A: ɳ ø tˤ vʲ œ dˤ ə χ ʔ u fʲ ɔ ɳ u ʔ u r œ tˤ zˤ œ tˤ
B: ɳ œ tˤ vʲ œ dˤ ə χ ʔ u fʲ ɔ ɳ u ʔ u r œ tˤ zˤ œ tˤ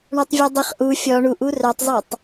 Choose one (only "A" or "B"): B